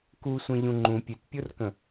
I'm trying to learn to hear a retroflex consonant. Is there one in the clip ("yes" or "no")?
no